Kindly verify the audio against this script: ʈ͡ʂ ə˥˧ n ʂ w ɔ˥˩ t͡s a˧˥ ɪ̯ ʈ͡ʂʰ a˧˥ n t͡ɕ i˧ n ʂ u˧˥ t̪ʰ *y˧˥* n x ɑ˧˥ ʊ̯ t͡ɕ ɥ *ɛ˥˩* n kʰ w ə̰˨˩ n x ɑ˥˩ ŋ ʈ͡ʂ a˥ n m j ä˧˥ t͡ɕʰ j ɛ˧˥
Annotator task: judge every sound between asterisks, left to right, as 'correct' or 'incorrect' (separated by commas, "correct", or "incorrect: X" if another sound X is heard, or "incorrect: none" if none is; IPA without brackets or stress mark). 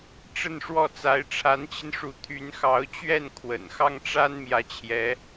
correct, correct